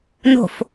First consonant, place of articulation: alveolar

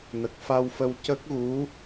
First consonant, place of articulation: alveolar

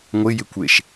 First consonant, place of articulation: velar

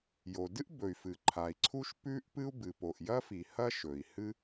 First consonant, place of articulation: palatal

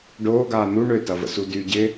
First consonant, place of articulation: retroflex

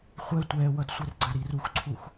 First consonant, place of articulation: uvular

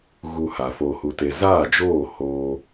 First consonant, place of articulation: velar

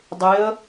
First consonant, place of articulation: alveolar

